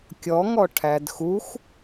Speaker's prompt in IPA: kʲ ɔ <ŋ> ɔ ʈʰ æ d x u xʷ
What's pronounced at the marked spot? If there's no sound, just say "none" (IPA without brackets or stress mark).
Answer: ŋ